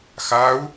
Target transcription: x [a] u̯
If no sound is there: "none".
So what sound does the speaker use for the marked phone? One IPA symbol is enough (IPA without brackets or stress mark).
a